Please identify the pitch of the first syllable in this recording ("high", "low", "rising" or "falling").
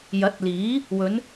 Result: rising